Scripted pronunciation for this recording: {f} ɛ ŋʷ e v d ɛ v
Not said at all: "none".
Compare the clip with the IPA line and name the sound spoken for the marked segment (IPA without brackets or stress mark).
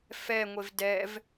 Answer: f